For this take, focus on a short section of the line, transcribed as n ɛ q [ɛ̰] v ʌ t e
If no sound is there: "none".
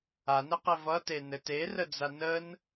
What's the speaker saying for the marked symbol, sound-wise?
ɛ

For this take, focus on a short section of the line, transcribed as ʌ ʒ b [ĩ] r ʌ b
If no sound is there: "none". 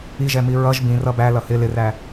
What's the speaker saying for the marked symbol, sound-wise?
ĩ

